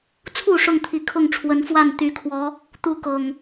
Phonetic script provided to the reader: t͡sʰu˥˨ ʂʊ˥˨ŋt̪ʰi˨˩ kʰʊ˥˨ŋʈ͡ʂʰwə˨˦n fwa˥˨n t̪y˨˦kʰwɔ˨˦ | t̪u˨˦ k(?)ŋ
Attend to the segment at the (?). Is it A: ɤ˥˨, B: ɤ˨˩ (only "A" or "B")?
B